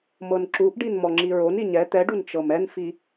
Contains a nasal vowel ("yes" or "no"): no